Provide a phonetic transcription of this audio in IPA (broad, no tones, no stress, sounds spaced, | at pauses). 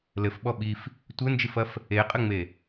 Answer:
l ɘ f ɓ ɔ ɓ i f | tʷ ɘ n d͡ʒ ɨ f ɐ f | e qʼ ɘ ŋ͡m e